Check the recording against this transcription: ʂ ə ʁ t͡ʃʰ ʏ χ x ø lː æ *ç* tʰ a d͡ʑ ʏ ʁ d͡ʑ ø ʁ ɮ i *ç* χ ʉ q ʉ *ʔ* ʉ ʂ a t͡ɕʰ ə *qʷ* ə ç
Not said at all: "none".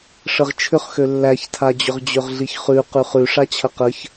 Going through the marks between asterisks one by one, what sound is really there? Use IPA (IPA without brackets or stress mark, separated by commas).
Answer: ç, ç, χ, q